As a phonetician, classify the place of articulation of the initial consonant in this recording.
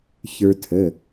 palatal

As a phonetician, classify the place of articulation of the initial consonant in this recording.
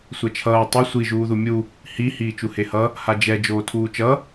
alveolar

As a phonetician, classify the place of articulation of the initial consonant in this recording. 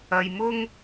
palatal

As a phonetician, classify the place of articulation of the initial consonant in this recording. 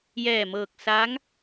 palatal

